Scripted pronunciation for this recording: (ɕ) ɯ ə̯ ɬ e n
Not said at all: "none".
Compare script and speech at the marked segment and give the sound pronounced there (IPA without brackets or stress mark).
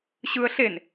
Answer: ɕ